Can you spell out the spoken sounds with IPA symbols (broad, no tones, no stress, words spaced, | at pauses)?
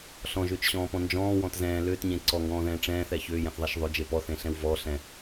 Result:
ɬɔ̃ʒʏːt͡ʃɕɔ̃ːpɔ̃ nd͡ʒɔ̃ːwɔ̃t zɛ̃ː lʏːtɲẽ ǀɔŋɡɔ̃ːðɛ̃ː ʈ͡ʂɛ̃ːθɛ çʏːjɛ̃θðˤɛʃ ðˤʏd͡ʒe pɔθẽɬɛ̃w vɔɬɛ̃